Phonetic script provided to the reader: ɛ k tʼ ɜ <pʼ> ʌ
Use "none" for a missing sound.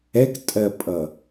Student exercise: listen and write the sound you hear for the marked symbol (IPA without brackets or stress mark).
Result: pʼ